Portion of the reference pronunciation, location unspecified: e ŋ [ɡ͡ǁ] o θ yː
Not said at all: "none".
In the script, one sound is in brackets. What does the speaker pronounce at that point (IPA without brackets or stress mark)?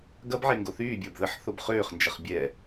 ɡ